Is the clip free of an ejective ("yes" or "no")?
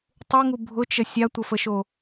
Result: yes